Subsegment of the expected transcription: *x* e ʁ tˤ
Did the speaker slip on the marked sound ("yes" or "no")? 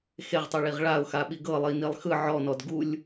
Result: no